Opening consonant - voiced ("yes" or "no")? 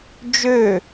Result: yes